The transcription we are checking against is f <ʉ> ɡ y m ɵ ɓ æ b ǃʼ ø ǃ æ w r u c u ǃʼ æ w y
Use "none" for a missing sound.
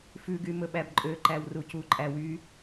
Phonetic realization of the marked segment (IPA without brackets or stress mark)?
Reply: ʉ